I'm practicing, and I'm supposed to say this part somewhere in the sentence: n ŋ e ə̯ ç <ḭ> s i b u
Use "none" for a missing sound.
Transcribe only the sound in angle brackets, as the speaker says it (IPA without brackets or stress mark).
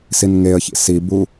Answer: ḭ